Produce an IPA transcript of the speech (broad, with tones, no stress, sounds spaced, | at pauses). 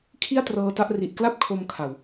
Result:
kʰ i˥˩ a̯ t r ɤː˧ t a˦˥ ʔ r i˨˩ ʔ k l a˥˩ p̚ kʰ o˧ m kʰ a˨˩ w